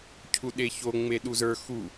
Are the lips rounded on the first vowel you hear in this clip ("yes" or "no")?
yes